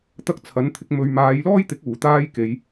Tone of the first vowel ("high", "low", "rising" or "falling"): high